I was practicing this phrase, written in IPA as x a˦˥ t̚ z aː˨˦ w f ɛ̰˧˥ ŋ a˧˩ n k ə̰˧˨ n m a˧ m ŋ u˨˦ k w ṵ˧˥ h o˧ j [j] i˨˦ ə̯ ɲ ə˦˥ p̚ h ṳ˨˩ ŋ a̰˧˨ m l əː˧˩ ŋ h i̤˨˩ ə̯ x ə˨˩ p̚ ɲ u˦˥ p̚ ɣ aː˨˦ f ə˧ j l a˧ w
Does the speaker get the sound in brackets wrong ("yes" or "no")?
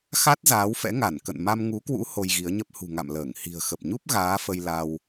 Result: yes